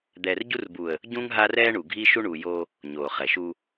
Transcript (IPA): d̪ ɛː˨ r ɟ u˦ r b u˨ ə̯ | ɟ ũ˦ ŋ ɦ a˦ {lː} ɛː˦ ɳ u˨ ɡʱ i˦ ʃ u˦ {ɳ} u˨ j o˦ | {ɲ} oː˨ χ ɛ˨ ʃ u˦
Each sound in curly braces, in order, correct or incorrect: incorrect: r, correct, correct

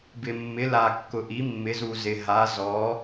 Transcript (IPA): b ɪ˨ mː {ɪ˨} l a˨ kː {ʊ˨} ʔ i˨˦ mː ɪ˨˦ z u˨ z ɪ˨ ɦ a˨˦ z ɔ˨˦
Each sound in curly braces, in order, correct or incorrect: incorrect: ɪ˨˦, correct

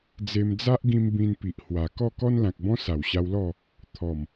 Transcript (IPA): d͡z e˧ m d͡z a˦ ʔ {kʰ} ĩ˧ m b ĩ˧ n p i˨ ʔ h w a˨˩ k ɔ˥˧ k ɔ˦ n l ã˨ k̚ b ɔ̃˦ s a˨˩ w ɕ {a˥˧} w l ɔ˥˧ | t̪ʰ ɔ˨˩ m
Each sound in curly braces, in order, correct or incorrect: incorrect: ɡ, incorrect: a˧

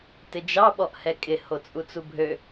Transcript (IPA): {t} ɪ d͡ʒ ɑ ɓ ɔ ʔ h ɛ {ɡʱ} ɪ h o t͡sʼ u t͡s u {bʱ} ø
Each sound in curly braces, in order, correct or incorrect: correct, incorrect: kʼ, correct

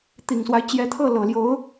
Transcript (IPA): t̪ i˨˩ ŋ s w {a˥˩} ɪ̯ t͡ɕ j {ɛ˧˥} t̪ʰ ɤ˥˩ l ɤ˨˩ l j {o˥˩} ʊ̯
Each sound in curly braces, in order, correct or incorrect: incorrect: a˦, correct, incorrect: o˧˥

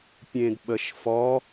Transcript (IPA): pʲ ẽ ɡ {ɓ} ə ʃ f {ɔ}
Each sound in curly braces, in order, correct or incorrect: correct, correct

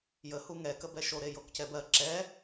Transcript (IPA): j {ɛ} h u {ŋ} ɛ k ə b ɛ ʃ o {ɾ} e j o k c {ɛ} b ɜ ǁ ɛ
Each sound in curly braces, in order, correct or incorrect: incorrect: ə, correct, correct, correct

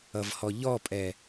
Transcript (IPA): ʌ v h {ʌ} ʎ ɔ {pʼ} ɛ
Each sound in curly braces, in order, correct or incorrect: incorrect: ɔ, correct

